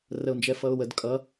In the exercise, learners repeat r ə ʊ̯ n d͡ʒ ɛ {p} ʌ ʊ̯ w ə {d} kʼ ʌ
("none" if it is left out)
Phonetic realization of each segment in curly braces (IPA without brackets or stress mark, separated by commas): f, d